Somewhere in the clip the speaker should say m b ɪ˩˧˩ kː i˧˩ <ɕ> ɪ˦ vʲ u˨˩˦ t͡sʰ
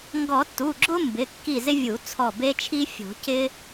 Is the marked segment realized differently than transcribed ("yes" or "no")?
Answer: yes